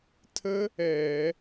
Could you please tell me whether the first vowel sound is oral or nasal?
oral